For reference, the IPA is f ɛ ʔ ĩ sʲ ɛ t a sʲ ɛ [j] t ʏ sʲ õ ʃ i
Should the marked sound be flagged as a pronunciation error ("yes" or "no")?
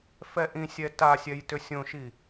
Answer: no